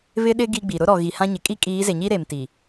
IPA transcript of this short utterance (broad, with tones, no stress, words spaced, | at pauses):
βɪ˦ɗɪ˦ ɡi˦ɡ͡bi˨ ɾʊ˦ɾɔ˨ ɣi˨hã˦ɲɪ˨ kʼi˦kʼiː˨˦ze˨ɲi˦ ɾe˨m ti˨